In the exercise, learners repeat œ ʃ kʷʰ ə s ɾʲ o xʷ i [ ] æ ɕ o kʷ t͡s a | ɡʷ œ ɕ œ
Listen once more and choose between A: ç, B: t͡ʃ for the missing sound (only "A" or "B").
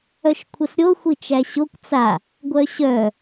B